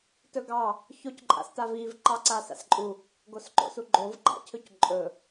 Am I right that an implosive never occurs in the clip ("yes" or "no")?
yes